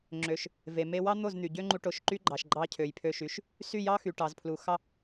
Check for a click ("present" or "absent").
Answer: present